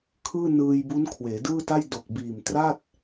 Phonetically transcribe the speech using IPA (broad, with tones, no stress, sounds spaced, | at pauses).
kʰ ɯː˥˩ n ɯː˧ j b u˦˥ n kʰ w eː˩˦ d ɯː˥˩ t a˥˩ j d o˨˩ k̚ b iː˨˩ m t r a˥˩ t̚